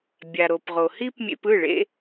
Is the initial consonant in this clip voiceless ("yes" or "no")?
no